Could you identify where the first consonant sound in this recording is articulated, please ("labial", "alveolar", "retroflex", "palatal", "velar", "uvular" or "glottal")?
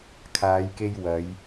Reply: velar